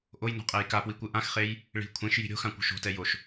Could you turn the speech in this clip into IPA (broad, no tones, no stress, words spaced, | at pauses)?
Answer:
ʔojno̤qʼej kapwikʷɯ ʔãxχej | ɭi̤ kʷʰẽʃji̤ ɾʲo̤xãkʷo̤ʃ o̤tɛjoʃ